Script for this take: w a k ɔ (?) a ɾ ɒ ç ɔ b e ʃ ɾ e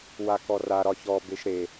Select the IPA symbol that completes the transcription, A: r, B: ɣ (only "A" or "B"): A